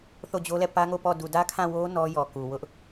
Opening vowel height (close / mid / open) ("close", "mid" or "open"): mid